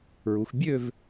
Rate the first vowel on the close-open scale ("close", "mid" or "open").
close